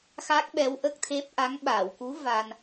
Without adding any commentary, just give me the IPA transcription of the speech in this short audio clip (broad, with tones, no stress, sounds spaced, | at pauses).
x a˦˥ k̚ ɓ ɛ˧˥ w ʔ ə˦˥ k̚ t̪ʰ e˦˥ p̚ ʔ a˧˥ ŋ ɓ a˨˩˨ w k u˧˥ v a˧ n